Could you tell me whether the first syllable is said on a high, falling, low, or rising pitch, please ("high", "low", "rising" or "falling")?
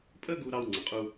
high